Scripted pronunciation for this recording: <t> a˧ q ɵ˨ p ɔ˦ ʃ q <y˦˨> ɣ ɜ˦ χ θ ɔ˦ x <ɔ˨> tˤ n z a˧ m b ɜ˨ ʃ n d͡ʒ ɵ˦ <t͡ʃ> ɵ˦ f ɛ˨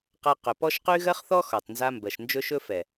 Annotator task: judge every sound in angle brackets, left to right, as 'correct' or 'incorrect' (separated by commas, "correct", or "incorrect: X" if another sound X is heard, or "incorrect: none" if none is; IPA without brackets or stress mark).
incorrect: q, incorrect: y˦, correct, incorrect: ʃ